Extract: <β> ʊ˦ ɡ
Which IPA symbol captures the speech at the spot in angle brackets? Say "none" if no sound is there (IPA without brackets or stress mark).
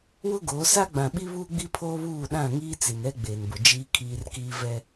w